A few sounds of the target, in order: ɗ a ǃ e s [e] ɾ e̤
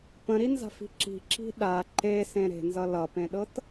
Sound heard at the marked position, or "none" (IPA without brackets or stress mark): ẽ